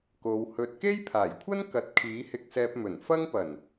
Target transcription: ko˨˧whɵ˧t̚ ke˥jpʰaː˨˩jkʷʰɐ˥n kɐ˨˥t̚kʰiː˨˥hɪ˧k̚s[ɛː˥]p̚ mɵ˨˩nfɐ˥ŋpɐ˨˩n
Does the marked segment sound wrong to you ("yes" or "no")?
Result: yes